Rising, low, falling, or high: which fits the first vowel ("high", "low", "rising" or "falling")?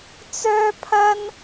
high